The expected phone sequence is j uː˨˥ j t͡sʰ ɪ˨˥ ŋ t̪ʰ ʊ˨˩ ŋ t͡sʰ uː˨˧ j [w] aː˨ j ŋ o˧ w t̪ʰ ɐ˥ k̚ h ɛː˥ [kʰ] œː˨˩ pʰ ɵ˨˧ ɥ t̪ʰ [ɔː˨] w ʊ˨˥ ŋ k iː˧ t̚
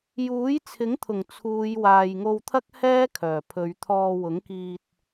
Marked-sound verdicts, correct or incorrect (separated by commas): correct, correct, incorrect